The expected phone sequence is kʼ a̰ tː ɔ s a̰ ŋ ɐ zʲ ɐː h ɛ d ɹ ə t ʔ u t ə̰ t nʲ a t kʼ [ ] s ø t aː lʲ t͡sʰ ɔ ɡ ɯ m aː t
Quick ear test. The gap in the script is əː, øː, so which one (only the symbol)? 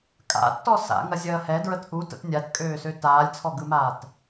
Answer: øː